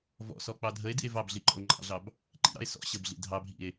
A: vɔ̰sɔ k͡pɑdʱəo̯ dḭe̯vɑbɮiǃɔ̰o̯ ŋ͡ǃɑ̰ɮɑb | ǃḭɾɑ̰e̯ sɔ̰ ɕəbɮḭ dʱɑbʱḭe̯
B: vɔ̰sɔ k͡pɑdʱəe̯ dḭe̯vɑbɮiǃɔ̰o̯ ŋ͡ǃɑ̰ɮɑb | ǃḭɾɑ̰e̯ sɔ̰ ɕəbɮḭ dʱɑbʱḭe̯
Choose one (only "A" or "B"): B